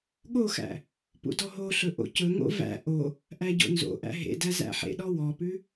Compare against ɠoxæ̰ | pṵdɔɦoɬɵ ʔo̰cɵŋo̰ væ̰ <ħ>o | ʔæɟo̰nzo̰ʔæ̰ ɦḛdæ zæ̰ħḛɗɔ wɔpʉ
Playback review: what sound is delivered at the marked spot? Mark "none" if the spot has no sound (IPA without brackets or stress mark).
ʔ